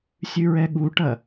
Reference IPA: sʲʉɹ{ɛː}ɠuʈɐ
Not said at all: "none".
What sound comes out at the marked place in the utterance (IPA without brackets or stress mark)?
ɛ